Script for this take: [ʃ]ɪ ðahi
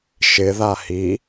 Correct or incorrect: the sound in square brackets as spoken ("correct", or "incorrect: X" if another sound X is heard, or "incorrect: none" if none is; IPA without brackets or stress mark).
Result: correct